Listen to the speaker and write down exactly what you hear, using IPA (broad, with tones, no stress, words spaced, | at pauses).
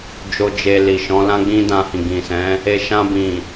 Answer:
d͡ʒo˧d͡ʒe˧li˨ ʃɔ̃˨˦lã˦ɡ͡bĩ˦ dã˧hĩ˨ ɡĩ˨sɛ̃˨˦ | e˨ʃã˧bĩ˨